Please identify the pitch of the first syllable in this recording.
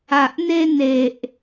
low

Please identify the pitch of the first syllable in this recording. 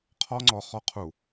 high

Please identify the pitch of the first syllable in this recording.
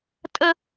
high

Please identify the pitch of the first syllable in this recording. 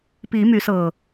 rising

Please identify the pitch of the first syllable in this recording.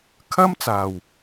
high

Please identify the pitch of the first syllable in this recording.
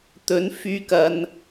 rising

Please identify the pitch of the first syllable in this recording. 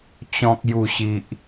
low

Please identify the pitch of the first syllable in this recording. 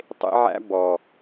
high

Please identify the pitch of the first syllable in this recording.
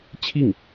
falling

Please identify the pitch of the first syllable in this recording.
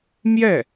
falling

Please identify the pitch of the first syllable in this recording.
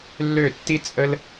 falling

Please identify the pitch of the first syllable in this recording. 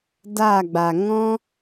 falling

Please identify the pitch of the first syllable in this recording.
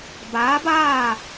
rising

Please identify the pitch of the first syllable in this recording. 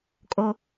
low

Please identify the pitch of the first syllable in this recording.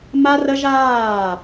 high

